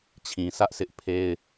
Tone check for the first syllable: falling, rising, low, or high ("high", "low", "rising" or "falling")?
low